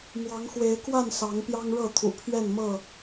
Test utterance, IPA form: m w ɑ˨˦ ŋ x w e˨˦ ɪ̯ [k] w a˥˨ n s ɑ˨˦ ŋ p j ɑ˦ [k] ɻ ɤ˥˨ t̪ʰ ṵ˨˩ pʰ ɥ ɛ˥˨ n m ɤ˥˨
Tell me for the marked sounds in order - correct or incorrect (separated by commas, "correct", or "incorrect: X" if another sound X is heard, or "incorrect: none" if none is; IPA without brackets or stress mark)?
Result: correct, incorrect: ŋ